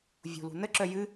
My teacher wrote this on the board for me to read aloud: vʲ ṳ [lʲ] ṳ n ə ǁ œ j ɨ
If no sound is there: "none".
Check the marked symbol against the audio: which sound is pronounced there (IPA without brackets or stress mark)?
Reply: l